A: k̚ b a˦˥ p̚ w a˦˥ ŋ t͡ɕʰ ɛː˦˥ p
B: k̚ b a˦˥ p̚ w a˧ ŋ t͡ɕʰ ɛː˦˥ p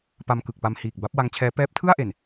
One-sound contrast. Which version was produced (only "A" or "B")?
A